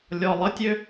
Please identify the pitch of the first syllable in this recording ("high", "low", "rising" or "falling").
low